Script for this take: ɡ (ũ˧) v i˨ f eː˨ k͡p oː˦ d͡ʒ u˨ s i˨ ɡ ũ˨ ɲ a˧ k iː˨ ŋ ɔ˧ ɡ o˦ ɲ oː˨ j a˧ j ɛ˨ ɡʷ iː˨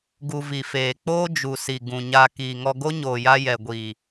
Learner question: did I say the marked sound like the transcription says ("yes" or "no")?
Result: no